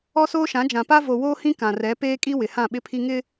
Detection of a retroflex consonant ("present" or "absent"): absent